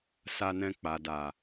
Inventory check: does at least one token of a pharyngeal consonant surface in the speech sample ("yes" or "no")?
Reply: no